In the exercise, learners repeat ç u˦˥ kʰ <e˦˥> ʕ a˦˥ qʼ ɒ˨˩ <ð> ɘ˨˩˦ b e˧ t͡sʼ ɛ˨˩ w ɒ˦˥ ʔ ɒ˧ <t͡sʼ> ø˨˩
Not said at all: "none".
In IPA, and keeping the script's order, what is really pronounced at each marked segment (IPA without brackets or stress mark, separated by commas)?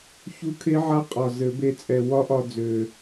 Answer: e˦˥, z, d͡z